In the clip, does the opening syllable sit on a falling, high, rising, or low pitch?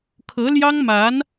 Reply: rising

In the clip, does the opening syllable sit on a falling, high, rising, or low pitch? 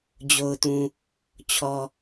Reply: low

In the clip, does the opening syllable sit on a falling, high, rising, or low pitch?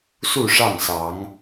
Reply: falling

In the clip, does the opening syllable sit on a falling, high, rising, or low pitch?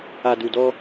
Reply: low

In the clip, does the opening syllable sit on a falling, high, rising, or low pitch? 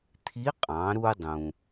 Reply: rising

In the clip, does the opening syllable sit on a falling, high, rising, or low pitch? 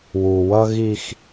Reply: low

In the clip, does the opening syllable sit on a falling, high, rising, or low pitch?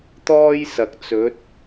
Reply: high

